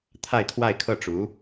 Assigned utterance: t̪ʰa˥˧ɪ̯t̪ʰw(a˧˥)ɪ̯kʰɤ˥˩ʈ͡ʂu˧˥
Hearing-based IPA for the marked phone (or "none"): a˥˧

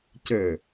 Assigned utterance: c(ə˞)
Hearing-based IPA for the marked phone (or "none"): ə˞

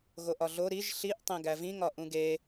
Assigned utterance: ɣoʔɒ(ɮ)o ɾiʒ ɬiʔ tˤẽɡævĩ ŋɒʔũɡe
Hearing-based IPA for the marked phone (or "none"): ɮ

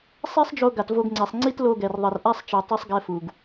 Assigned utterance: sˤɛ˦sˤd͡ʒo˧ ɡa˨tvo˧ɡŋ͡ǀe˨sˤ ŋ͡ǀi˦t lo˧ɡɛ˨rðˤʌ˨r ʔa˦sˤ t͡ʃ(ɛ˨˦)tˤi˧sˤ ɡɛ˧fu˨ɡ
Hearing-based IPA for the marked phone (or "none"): ɛ˨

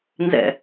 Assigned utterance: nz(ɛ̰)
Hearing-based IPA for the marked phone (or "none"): ɛ̰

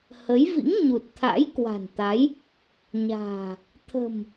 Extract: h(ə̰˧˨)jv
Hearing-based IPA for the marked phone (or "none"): ə˨˦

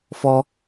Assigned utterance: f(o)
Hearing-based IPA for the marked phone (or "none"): ɔ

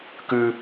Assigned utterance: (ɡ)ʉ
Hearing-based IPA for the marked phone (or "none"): k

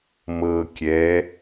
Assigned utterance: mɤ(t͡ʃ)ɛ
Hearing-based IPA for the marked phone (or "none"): kʲ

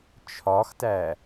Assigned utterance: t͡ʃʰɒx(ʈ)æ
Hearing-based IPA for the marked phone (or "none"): t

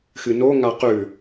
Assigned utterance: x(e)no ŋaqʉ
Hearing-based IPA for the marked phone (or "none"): ɨ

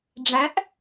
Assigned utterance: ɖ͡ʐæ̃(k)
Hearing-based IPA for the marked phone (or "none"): ʔ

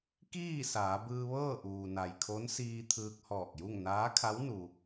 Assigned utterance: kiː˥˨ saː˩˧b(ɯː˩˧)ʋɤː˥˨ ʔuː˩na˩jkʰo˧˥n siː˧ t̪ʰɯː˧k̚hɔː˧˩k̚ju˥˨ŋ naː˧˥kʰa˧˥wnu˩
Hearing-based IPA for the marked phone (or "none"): ɯː˧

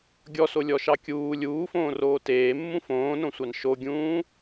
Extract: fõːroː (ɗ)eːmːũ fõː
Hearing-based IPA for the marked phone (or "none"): t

